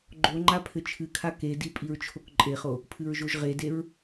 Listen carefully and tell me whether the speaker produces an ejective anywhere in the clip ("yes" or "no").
yes